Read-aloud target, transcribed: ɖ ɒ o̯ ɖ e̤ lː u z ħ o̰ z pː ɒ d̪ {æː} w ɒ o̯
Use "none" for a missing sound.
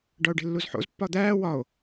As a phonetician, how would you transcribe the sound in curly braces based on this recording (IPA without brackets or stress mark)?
æː